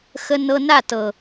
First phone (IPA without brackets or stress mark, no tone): x